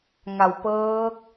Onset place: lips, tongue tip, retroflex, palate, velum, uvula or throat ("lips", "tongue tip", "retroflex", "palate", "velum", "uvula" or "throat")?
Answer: velum